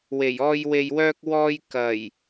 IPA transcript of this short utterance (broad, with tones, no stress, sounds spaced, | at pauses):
w e˨˩ j ɔː˧ j w e˨ j w œː˧ k̚ w ɔː˧ j k ɐ˨˩ j